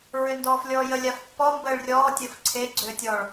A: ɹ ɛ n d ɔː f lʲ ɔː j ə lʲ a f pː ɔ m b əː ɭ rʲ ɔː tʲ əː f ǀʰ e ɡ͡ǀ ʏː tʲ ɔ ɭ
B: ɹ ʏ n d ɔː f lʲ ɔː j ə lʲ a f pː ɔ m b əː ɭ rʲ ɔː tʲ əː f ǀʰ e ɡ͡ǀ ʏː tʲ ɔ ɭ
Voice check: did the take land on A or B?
B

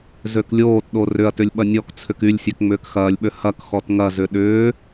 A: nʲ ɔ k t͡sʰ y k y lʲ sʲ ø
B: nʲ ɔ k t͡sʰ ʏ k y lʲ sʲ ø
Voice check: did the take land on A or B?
B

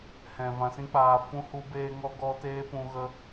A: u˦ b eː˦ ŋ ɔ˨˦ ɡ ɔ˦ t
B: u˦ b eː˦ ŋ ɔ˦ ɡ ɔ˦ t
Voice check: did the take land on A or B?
B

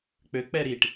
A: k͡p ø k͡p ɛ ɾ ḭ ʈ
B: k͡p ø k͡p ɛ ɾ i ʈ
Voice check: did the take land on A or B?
B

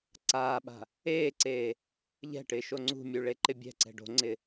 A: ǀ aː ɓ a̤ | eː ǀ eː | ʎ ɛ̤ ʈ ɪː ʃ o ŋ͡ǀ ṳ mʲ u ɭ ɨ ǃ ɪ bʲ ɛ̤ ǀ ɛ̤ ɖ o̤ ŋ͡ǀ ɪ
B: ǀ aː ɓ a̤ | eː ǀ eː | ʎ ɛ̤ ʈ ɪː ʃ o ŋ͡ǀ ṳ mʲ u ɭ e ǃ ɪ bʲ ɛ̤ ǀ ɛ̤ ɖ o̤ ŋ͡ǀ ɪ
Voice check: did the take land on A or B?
B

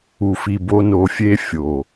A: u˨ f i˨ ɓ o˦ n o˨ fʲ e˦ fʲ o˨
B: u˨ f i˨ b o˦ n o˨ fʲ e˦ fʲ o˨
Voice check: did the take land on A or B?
B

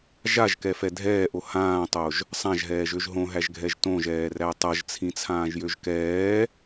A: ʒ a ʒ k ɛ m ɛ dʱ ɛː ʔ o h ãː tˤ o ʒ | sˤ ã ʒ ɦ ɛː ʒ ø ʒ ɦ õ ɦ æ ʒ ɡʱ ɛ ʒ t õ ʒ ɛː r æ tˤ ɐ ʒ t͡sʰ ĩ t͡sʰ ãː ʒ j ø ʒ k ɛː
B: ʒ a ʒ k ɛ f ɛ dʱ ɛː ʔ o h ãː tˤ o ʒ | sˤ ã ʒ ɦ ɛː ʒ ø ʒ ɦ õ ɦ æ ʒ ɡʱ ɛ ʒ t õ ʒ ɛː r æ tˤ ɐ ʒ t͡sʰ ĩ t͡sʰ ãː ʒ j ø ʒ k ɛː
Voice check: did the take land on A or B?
B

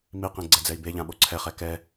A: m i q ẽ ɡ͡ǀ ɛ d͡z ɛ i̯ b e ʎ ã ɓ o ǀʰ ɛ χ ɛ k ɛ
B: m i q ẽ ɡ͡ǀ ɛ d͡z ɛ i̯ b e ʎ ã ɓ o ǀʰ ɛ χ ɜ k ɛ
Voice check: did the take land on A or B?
A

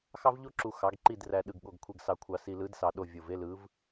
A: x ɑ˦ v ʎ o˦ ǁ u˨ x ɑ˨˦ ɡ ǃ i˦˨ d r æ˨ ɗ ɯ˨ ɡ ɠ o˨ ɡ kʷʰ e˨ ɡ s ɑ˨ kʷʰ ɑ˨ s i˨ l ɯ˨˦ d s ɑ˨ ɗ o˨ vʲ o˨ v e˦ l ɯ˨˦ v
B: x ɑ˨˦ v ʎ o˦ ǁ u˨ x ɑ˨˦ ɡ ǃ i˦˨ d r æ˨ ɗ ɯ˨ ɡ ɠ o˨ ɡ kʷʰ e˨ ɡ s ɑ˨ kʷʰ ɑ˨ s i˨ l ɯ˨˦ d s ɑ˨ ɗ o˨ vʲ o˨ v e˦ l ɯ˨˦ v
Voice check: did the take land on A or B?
A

